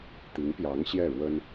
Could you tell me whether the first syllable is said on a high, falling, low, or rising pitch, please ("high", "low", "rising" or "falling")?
rising